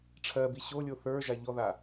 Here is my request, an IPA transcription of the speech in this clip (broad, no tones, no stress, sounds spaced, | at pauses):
ʈ͡ʂʰ ɜ b i ɕ o lʲ o θ ə˞ ʒ a ʎ ɔ ð a